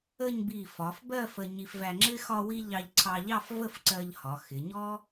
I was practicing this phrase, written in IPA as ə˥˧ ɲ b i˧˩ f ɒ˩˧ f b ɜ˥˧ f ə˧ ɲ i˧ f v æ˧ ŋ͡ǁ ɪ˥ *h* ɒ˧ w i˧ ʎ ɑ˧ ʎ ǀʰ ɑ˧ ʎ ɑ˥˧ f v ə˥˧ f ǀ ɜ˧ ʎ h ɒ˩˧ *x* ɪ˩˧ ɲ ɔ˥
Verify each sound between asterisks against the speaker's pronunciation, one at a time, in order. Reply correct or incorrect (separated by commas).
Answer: incorrect, correct